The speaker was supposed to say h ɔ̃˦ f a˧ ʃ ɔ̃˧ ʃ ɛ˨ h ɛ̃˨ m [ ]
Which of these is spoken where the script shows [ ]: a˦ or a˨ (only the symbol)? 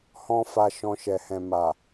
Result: a˨